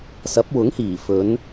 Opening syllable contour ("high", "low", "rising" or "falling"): rising